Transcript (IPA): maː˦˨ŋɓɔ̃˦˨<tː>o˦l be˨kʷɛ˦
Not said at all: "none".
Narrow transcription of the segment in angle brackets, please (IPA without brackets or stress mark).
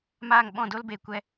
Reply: d